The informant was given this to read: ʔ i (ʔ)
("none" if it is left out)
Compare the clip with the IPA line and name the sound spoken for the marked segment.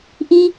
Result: none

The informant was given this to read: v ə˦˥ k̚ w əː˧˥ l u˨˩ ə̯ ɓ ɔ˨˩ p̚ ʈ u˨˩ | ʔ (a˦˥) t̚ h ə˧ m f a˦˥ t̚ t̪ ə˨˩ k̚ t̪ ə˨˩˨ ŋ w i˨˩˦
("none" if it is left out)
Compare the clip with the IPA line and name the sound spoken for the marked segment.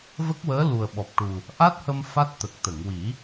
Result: a˦˥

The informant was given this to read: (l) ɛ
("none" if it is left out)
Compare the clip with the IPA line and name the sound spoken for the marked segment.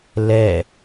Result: l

